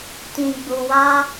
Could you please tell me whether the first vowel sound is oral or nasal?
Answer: nasal